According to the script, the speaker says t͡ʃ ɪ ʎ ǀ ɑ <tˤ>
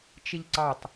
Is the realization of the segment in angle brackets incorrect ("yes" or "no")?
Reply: no